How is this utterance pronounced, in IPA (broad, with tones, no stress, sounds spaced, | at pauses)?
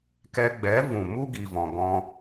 k ɛ˧ ɡ͡b ɛ˨˦ v ũ˨ m u˦ ɡ i˨ v ɔ̃˨ ɡ ɔ̃˧